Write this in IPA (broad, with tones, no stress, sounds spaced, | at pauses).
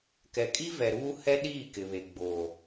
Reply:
k ɛ˨ kʼ i˦ v ɛ˨ ɾ uː˦ h ɛ˦ ɗ iː˦˨ k ɪ˨ β e˨ ɡ͡b oː˨